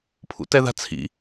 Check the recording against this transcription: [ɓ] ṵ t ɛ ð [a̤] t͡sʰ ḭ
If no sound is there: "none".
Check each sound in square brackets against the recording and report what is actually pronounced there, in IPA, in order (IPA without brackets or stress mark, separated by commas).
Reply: pʰ, a̤